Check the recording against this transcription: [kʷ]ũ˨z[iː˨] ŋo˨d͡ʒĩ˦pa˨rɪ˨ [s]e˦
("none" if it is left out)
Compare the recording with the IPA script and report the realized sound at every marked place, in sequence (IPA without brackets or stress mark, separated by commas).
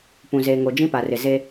p, eː˨, z